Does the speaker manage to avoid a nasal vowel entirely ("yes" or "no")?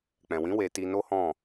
no